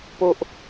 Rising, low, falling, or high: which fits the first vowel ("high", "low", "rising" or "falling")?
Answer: high